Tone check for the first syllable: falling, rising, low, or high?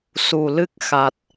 low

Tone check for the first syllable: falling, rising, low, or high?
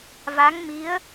rising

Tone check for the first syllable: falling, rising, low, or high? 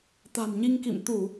low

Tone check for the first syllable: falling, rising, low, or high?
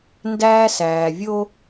high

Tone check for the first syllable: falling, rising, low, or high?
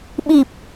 low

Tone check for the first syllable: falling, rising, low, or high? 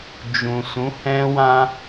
low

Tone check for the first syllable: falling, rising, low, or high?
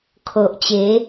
low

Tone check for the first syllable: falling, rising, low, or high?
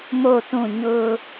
falling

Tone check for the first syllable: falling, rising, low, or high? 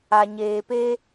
low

